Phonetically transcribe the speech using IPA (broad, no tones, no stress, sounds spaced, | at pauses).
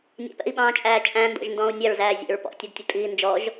nʲ ɑ̰ p ɛ̰ i̯ ɓ ɑ̃ː t͡ʃʼ æː t͡ʃʼ æ̃ n d ɔ̰ ʒ n d ɔ̃ː u̯ nʲ ɑ ɹ z æː zʲ æ̰ ɹ p ɔ̰ tʲ u d tʲ ʊ tʼ iː n d͡ʒ ɔ ʒ